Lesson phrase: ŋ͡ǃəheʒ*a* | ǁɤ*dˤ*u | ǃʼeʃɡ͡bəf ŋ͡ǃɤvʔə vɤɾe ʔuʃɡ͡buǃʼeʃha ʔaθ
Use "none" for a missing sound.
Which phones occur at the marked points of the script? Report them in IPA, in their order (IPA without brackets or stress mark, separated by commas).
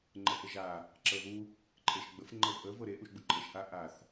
a, ð